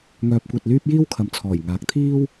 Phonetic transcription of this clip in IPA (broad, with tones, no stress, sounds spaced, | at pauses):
ŋ œː˧ p̚ kʷ ɐ˧ t̚ l yː˥ p̚ j iː˥ w kʰ ɐ˨ m t͡sʰ ɔː˨˩ j ŋ aː˨ k̚ t̪ʰ iː˥ w